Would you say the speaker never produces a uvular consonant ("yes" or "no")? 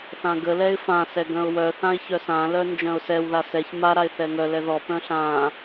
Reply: yes